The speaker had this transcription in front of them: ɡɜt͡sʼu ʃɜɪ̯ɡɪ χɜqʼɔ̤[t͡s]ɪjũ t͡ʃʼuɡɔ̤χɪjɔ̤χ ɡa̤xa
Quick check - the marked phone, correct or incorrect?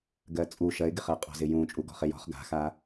incorrect